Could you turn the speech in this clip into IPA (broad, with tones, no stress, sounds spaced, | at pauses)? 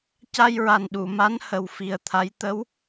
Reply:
c a˧ j ɹ a˨˩ n ɗ u˨˩˨ m a˧˥ n h ə˨˩ w f i˨˩ ə̯ t̪ʰ a˧˥ j t̪ ə˧˥ w